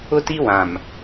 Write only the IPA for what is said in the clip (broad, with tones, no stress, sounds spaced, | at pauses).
ʊ˦ t i˦ w ã˨ m